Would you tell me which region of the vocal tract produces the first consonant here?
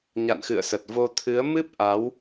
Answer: palate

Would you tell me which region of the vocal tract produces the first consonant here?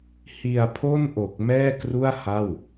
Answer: throat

